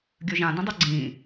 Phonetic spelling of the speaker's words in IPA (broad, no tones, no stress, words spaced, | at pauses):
ɡʲɵʒã dĩdˤoɡ͡ǀĩː